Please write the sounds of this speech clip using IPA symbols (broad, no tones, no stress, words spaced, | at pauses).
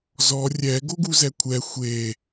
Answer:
zɔ rʲɛ ɡoɡuzɛkʷʰɛ xʷe